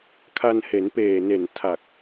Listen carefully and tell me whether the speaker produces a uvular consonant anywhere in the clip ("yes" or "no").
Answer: no